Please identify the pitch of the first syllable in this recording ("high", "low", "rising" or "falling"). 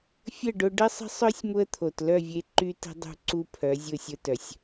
falling